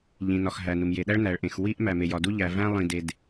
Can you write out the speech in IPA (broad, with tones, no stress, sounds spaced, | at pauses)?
ʎ ĩ˩ n ɒ˩ x ɦ æ˩ n u˩ m j e˩ ɗ æ˥ ɭ n æ˩ ɭ ʔ ẽ˩ x w i˥ ʔ m æ˩ m e˩ j ɒ˩ d u˥ ʎ æ˩ v æ̃˥ lˠ ĩ˩ d e˩ d